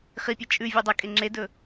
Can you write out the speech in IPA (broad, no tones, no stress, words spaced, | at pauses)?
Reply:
χipʲa t͡ʃʼʉ vʲʉdˤɐkʼe ŋ͡ǁedɵ